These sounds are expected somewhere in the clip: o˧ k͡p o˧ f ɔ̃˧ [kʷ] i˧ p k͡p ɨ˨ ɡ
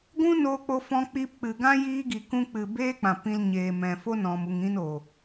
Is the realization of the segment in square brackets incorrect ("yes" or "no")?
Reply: yes